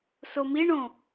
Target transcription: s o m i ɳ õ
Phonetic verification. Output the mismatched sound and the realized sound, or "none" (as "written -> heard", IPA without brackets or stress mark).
none